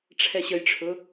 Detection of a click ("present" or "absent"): absent